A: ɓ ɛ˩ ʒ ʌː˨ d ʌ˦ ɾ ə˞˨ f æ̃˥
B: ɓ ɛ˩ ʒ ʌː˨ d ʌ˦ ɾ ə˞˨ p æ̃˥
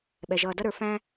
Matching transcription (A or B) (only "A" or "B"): A